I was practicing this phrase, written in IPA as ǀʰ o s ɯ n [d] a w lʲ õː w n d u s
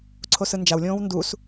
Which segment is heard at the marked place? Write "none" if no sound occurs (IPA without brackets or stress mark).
d͡ʒ